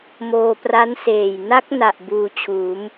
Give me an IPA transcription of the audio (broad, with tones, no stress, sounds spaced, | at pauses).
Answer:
m oː˧ p r a˦˥ n s eː˨˩ j n a˦˥ k̚ n a˨˩ ʔ b uː˧ t͡ɕʰ uː˩˦ m